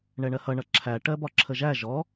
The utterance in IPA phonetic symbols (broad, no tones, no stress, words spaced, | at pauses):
ɳɛɳɜhʌ ɳʌǁʰæ ʈɜbɒǁʰəʒæ ʒɔ